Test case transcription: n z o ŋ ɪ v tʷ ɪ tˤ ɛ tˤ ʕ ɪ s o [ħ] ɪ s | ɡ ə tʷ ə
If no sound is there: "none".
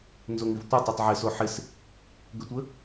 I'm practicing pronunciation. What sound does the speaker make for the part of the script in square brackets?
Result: ħ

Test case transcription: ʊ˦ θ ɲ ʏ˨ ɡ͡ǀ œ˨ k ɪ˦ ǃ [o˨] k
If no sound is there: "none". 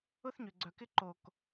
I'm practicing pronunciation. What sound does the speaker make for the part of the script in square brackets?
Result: o˨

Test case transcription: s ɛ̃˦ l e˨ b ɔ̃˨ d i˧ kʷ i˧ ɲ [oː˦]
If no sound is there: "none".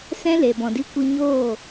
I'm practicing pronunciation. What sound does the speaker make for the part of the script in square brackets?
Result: oː˦˨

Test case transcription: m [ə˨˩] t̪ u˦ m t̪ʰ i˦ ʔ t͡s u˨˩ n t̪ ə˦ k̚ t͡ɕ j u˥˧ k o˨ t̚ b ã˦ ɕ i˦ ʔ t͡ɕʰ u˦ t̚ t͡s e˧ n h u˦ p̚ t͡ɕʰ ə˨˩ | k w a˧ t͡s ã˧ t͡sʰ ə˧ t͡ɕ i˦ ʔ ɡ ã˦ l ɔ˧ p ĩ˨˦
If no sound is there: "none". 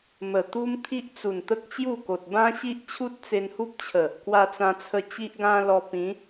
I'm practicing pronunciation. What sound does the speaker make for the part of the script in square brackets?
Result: ə˨˩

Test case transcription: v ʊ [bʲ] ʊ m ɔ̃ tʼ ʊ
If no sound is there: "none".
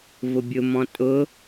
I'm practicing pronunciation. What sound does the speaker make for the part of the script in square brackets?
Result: bʲ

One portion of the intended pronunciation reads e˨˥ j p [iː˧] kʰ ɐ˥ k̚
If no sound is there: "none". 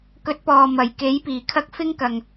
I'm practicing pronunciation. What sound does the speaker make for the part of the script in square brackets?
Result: iː˨˩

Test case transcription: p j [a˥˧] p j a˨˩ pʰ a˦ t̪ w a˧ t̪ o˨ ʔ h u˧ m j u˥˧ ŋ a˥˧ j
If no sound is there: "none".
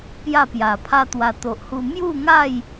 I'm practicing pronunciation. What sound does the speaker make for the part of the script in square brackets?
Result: a˥˧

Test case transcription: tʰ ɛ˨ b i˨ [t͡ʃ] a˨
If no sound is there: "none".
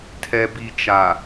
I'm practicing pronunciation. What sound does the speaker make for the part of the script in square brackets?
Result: t͡ʃ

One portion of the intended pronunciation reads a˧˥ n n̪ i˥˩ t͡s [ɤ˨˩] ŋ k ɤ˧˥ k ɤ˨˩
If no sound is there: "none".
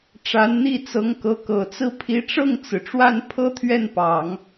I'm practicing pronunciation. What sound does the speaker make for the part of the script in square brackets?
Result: ɤ˧˥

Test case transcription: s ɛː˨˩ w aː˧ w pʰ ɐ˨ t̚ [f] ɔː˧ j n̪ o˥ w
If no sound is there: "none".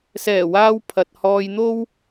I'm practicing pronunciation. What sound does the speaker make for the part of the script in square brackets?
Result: h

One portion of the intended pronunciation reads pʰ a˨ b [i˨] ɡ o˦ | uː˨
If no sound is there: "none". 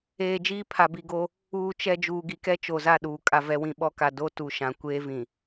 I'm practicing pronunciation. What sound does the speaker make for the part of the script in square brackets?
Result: i˨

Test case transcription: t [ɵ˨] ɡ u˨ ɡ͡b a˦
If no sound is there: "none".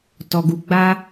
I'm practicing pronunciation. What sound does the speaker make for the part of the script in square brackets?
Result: ɔ˨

